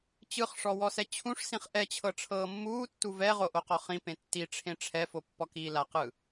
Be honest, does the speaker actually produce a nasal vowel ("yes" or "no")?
yes